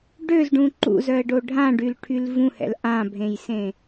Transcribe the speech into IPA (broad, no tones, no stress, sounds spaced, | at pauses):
ɖ ø z ɖ ũ ǃ ṵ z œ ə̯ ɖ o ɖʱ ã ɖ y l ʈʰ y l v ũ h ɛ̰ l ʔ ã bʱ ẽ j s ẽ